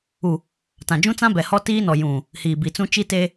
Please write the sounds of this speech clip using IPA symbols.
u˨ | tã˨d͡ʒũ˦t͡sã˦bɛ˨ hɔ˦tiː˦nɔ˨ jũ˨ | hiː˨bi˨t͡sũ˦ t͡ʃi˦teː˦

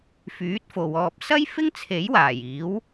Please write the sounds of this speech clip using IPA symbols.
fyː˨˥t̚fo˨wɔː˧p̚ sɐ˥jfɪ˥ŋ t͡sʰe˨˥jwaː˨˩jiː˨˥w

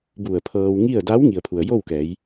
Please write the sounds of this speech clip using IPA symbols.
bu˧˩ə̯pʰɤː˧w ŋi˥˨ə̯ da˧˥w ŋi˩ə̯pʰu˩ə̯jo˥˨wkɛː˩˧j

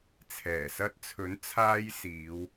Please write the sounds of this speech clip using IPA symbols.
t͡sʰɛː˨˩ sɐ˧t̚t͡sʰɵ˨˥n t͡sʰaː˧jsiː˨˧w

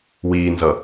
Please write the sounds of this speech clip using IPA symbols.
wiːnzʌ

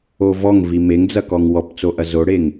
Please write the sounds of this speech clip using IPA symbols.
ovɔŋvi meŋd͡zɐkɔŋ wɔpt͡soʔɐ zoɽeŋ

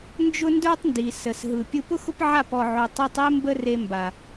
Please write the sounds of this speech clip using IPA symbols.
nd͡ʒʊ˦ndə˞˦tˤndi˨ sə˨sɦɯ˨pʲɯ˧ pʊ˦xʊ˦p ʕa˦˨p ɔ˨ʕo˨ tˤe˧tˤe˦ mbə˦re˧mba˨

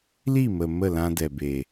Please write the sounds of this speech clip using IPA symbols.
li˦˨mə˨ mə˦˨lã˧dɛ˨be˨

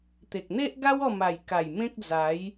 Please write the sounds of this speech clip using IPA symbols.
t̪e˨k̚n̪e˦ʔɡa˦w ɔ˥˧ma˨˩jka˨˩j mẽ˦k̚d͡za˨˦j

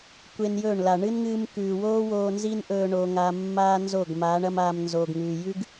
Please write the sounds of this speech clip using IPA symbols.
kʷe˧njɵː˦˨ɳla˨ ɳɨ˦nŋɨː˧mkʉː˨woː˦ woː˧nzi˦nʔɵː˧ ɳoː˧ŋa˧ mːaː˦nzo˦˨ɡmaː˨˦ɳ ɐ˦maː˧m nzoː˨ɡŋʉː˨jʉ˦ɡ

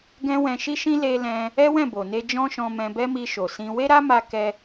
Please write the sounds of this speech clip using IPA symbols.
ɡɛ̃˦wɛ̃˧ʃi˦ʃĩ˦ le˧lɛ̃˧ | ɛ˦wɛ̃˦˨bo˨ne˧ d͡ʒɔ̃˦ʃɔ̃˧mɛ̃˧bɛ˦ mi˧ʃo˨sĩ˧ we˦ɾa˦ma˧ kɛ˦

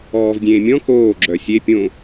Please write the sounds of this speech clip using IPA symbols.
ɔːvdʲẽː mʲɔ̃ koːɡ͡ǁœ sʲe pʲõ

